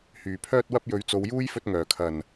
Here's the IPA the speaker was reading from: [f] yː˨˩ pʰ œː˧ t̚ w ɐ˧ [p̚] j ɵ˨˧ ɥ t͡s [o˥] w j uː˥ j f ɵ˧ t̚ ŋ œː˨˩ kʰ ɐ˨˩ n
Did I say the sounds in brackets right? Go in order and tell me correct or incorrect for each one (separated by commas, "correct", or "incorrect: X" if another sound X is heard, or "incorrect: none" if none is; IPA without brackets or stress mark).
incorrect: h, correct, incorrect: o˨˧